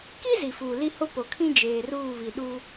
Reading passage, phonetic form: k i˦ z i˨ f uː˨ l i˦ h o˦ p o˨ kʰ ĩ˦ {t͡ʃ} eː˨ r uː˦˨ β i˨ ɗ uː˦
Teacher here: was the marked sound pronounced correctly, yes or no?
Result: no